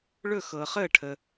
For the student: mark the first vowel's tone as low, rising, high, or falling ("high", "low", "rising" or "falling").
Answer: falling